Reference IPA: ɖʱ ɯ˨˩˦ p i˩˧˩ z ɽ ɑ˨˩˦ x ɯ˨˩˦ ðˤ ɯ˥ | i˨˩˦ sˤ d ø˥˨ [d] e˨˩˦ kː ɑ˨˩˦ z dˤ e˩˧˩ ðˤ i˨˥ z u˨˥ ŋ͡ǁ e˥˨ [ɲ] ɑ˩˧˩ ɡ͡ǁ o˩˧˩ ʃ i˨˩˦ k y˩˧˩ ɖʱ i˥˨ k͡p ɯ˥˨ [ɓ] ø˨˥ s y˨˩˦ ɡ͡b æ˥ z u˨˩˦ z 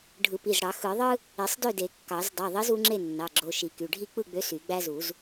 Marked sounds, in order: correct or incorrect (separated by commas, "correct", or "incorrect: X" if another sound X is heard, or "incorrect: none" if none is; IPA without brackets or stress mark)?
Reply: correct, incorrect: nː, incorrect: ɡ͡b